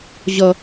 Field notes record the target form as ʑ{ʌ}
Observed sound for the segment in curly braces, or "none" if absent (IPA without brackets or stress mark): ʌ